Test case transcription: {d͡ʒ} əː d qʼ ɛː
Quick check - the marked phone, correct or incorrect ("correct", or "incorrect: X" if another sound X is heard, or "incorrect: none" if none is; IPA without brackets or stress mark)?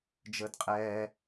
correct